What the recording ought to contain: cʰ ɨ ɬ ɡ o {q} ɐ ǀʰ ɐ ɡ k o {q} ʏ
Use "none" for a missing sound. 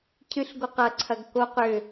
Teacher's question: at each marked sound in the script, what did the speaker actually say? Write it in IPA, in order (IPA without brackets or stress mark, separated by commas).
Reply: q, q